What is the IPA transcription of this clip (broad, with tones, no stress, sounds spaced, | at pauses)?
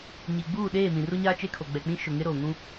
ɲ iː˨ ɡ͡b uː˦˨ ɗ eː˦˨ m ĩ˨ r u˦ ɲ aː˦ t͡ʃ e˦ kʰ o˨ ɡ͡b ɛ˨ k͡p ĩ˦ ʃ ʊ˨ ŋ ɪ˦ ɾ oː˨ ŋ ũ˦